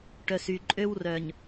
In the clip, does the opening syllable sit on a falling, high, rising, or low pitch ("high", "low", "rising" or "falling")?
low